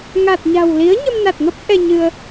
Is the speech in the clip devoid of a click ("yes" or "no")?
yes